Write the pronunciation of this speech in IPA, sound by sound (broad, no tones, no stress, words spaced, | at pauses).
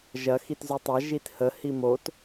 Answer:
ʒɐ xitzʉtˤa ʒithə himot